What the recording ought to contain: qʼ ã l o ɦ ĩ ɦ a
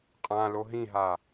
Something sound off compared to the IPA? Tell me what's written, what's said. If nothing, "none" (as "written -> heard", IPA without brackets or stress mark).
none